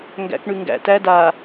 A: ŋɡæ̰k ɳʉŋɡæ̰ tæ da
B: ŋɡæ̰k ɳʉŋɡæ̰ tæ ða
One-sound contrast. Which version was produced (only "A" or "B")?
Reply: A